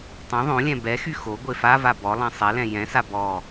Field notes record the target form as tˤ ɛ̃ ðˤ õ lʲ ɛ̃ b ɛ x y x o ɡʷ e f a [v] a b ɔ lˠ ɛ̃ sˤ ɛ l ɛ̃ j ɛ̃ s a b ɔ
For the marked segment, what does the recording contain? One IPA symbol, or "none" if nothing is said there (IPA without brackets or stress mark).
v